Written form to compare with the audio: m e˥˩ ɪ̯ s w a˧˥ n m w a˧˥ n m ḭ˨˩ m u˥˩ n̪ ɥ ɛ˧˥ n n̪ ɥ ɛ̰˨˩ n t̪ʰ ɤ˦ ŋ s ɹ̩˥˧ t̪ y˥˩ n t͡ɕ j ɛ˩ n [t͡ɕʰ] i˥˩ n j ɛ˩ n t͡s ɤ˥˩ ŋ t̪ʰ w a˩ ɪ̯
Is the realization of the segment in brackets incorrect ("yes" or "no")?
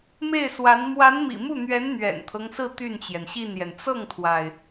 yes